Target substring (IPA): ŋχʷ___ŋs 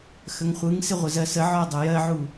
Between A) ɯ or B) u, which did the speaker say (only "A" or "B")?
A